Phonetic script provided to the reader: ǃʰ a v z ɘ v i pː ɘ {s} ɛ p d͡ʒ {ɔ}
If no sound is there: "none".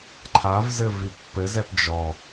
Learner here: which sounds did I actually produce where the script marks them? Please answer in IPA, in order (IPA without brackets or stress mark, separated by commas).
z, ɔ